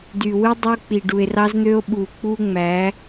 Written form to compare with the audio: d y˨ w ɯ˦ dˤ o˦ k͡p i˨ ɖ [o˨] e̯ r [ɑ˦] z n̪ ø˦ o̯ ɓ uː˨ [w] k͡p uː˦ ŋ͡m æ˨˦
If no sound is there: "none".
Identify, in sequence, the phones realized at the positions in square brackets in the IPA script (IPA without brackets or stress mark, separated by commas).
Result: u˨, ɑ˦, none